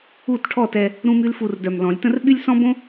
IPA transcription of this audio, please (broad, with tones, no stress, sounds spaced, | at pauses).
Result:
u˥˨ t ʈʰ ɔ˥˨ t ɛ˧ | ɾ ũ˥ m y˥ l f u˧ r d œ˨˩ m l ɔ̃˨˩˦ lʲ t ə̃˥ r ɓ y˥ lʲ s ɔ̃˥ b õ˥